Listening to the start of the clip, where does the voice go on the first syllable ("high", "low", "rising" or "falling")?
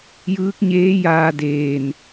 rising